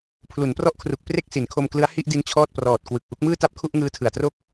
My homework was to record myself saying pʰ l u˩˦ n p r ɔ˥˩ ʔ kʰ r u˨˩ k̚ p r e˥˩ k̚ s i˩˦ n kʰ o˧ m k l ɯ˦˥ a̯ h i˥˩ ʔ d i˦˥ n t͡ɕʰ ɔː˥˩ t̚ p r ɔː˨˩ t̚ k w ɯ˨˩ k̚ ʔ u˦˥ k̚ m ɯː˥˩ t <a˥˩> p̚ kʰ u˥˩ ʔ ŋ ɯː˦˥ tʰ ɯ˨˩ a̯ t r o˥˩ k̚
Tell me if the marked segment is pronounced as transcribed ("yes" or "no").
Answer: yes